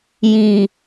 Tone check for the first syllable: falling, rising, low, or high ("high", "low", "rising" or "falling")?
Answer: low